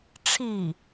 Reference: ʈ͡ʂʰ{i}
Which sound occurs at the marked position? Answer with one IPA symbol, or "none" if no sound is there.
i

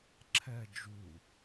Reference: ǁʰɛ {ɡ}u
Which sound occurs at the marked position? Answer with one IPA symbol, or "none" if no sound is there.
d͡ʒ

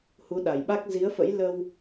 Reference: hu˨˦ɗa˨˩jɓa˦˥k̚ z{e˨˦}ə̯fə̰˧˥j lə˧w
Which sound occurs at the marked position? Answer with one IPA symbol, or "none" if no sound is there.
i˨˦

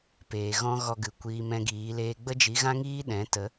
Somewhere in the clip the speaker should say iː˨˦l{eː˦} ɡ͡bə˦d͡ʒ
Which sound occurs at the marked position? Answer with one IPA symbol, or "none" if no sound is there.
eː˦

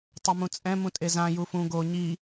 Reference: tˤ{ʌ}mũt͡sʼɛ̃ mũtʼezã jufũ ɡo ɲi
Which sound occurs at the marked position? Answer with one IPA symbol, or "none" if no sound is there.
ʌ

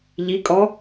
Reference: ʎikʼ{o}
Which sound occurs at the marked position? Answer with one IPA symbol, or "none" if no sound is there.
ɔ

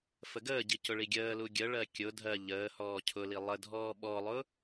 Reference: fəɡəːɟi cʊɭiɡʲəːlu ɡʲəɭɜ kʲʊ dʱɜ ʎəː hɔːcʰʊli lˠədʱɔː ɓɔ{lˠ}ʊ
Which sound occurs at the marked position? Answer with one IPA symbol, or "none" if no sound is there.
lˠ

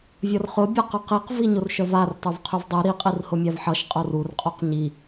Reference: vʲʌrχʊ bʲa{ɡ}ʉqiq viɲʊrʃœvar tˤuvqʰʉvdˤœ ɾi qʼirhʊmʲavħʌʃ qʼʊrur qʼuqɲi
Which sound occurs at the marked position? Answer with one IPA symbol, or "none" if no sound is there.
q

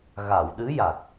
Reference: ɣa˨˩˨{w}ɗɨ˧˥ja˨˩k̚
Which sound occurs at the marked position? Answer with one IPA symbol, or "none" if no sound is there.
w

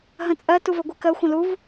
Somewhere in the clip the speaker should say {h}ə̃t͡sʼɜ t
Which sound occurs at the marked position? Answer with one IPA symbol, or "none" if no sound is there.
ɦ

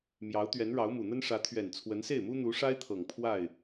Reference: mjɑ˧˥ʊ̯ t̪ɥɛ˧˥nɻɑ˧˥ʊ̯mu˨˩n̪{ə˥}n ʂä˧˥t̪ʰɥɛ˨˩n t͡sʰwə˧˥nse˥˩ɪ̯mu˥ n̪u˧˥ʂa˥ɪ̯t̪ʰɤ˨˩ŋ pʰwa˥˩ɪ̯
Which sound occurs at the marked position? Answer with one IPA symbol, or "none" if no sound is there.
ə˥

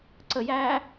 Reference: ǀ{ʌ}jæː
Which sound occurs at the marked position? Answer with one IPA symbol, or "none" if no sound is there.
ə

